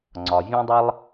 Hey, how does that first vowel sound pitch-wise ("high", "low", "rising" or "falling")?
low